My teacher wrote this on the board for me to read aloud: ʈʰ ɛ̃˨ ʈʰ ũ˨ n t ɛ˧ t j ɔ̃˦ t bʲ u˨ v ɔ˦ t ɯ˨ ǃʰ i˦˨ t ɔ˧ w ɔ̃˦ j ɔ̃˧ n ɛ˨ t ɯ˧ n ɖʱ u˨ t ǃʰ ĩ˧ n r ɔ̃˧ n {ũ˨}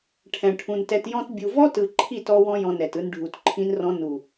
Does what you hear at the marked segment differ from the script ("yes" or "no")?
yes